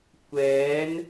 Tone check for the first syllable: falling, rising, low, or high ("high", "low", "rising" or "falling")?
rising